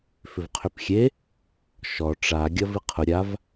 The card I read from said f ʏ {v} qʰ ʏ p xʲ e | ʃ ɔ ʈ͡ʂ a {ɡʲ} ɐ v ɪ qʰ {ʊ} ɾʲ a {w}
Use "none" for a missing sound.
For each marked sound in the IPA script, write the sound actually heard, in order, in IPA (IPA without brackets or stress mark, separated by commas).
v, ɡʲ, ʊ, v